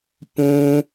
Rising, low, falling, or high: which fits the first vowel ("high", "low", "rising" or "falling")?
high